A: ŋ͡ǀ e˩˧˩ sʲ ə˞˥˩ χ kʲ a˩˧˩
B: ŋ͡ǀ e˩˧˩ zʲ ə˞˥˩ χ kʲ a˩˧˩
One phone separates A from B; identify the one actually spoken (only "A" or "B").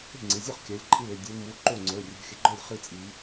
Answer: B